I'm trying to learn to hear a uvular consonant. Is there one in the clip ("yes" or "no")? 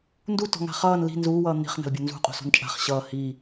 yes